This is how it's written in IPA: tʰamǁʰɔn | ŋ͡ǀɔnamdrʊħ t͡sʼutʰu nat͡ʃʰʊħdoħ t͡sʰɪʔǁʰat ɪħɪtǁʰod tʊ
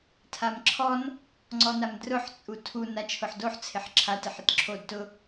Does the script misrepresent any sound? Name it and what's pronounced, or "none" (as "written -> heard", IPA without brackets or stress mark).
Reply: ʔ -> ħ